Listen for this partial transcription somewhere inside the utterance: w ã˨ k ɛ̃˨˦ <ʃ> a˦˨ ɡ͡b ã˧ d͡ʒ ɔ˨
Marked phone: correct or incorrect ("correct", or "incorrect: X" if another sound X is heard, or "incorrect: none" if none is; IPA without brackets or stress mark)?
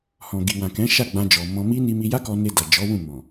correct